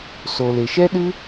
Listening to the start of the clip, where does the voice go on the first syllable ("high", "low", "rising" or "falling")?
low